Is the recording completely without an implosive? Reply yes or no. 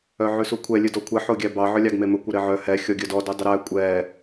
yes